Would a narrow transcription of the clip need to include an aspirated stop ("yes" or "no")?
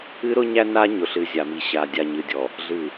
no